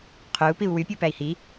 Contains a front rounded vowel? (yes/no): yes